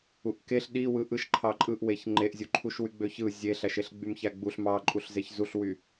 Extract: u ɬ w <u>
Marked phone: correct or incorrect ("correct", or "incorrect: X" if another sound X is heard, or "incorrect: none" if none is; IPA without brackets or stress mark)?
incorrect: y